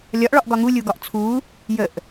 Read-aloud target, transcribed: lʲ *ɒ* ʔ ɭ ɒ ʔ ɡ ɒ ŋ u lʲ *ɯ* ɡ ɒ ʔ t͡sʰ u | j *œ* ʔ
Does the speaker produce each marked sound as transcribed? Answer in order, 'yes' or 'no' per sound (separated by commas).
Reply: yes, no, no